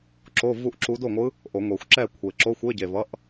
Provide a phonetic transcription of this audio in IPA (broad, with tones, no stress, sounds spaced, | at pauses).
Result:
ǁ o˧˥˧ v u˥˧ ʔ ǁ u˧˥ d o˥˩ ŋʷ ɯ˧˥ | ʔ o˨˩˦ ŋʷ e˨˩˦ xʷ ǁ ɛ˥˩ kʷʰ e˨˩ ǁ o˧˥˧ xʷ e˧˥˧ ɟ e˨˩ v ʌ˧˥˧ ʔ